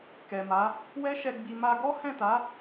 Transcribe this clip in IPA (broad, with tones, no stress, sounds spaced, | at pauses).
k ɛ˨ m a˨˦ | w ɛ˦ ʃ ɛ˧ ɡ͡b i˧ m a˧ ɡ ɔ˦ h ɛ̃˦˨ t a˨˦